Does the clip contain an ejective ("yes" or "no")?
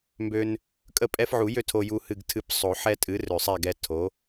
yes